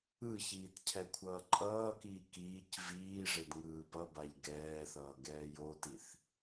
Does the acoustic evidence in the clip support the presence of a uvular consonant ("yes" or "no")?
no